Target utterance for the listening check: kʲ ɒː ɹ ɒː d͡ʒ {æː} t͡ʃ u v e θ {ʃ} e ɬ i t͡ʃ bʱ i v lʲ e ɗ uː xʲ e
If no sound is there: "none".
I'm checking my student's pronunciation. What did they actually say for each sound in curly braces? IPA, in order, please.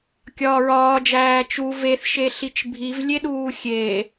æː, ʃ

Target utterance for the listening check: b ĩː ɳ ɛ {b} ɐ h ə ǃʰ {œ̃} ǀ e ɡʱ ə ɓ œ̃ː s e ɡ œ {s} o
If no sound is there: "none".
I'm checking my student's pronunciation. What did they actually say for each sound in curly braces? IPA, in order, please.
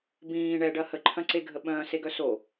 ɖ, œ̃, s

